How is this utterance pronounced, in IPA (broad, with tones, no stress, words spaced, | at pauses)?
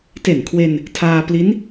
te˨˩nkʰwe˧n | tʰaː˧ pli˦˥n